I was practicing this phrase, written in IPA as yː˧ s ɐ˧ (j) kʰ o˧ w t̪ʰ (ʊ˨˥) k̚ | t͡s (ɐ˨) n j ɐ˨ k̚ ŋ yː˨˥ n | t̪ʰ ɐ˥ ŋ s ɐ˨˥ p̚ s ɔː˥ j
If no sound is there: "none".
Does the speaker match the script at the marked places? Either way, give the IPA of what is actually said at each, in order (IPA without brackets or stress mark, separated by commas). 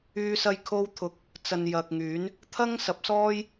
j, ʊ˨˥, ɐ˨